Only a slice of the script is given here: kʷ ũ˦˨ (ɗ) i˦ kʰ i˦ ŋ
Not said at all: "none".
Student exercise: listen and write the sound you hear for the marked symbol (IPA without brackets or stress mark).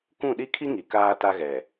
ɗ